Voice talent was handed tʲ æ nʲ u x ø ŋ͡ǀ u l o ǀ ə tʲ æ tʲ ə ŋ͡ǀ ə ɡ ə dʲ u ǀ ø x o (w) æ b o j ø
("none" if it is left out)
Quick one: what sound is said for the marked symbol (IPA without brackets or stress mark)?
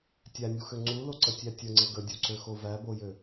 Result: v